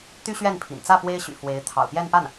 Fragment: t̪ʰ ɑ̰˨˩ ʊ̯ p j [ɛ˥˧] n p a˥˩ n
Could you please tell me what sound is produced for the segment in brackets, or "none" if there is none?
ɛ˥˧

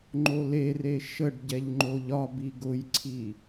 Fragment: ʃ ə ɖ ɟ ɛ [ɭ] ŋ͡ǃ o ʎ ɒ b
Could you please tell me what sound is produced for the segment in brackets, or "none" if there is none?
ʎ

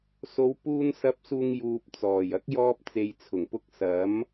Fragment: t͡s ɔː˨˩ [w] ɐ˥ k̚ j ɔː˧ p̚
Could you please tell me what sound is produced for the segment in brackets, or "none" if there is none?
j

